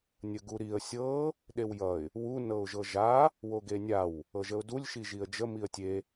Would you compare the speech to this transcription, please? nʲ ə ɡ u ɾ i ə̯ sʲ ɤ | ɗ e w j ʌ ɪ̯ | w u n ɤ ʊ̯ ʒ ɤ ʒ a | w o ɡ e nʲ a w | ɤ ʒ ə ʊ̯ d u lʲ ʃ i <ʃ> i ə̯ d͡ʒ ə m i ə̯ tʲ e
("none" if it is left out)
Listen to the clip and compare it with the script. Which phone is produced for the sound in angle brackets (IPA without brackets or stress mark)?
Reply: ʒ